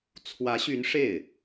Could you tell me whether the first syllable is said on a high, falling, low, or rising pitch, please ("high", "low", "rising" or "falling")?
rising